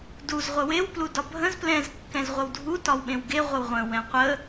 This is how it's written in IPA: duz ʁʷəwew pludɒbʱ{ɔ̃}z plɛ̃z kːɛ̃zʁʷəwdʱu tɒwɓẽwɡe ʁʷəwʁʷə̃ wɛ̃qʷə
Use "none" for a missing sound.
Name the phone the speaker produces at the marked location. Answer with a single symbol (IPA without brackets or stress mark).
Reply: ə̃